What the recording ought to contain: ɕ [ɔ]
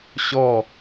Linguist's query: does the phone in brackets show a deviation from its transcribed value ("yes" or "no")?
no